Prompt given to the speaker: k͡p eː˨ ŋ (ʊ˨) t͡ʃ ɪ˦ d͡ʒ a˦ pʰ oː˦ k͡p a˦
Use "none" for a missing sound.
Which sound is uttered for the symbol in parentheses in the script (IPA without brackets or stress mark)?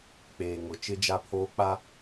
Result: ʊ˨